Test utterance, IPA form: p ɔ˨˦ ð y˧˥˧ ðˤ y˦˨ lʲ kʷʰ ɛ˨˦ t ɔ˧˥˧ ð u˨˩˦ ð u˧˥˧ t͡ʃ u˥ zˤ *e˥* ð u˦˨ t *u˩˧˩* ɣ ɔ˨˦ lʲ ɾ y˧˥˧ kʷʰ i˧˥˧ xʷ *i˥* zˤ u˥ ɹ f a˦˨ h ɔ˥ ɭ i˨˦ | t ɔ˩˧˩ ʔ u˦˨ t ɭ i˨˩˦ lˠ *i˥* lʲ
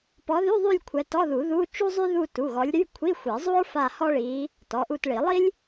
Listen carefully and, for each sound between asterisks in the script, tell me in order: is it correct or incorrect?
incorrect: y˥, correct, incorrect: i˨˩˦, correct

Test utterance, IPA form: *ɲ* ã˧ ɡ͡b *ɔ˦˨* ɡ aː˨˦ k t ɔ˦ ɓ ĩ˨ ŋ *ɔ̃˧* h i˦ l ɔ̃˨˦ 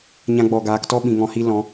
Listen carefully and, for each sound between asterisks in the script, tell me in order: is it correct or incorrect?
correct, incorrect: ɔ˨, correct

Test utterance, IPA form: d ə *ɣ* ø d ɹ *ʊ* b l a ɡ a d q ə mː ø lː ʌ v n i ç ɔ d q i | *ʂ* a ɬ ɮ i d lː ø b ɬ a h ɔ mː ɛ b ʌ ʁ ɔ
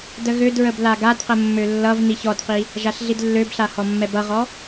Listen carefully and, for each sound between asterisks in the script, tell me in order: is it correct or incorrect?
correct, incorrect: ə, incorrect: ʒ

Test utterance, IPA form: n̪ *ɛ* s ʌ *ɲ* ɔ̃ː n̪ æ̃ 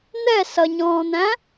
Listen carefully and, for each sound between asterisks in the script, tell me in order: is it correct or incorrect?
correct, correct

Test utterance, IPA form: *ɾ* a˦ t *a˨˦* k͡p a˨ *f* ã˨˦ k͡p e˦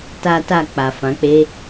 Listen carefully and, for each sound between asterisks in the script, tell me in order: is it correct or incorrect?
incorrect: t, incorrect: a˦˨, correct

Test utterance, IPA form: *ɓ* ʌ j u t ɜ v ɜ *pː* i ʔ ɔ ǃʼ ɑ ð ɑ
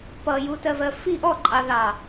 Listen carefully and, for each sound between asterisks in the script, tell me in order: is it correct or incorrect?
incorrect: p, incorrect: f

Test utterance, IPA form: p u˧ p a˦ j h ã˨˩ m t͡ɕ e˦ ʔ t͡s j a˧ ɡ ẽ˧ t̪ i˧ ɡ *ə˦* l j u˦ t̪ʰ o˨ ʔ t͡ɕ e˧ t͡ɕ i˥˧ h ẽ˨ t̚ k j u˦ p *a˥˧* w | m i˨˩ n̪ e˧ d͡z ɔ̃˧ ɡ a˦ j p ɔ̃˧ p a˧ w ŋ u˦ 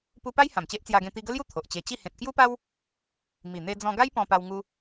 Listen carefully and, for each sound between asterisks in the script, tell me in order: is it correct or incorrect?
correct, incorrect: a˦

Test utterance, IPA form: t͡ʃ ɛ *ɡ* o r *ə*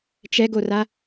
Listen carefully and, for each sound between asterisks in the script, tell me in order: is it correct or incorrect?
correct, incorrect: a

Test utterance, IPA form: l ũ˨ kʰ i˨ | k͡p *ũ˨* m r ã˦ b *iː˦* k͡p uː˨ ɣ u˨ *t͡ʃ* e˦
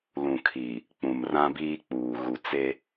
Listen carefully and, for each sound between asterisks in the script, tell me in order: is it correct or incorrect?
correct, correct, incorrect: t͡s

